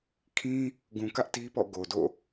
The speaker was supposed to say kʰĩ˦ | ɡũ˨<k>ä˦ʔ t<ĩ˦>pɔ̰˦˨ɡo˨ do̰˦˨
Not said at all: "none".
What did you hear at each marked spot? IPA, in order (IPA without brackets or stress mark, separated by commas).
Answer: k, i˦